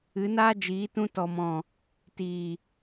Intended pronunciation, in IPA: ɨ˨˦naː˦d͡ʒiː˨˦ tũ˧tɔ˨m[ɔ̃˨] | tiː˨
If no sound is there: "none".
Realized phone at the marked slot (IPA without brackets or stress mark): ɔ̃˨